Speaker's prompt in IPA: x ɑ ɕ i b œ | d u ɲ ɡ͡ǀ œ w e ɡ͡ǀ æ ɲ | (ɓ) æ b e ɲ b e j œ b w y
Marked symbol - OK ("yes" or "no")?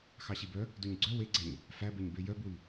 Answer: no